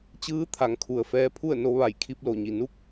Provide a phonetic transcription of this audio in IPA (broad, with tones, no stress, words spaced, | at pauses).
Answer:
t͡ɕɯː˧˥t̪ʰa˩ŋkʰu˩ə̯ fɛː˧˥pʰu˥˨ə̯ no˧ ʋa˧˩jkʰi˧p̚lo˧˩ɲi˧˩ nu˥˨k̚